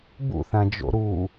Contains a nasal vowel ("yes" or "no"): yes